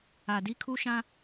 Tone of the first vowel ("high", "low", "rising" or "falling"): low